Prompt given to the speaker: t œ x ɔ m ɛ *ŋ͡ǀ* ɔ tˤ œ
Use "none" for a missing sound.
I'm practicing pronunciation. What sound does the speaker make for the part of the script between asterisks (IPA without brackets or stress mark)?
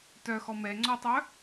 ŋ͡ǀ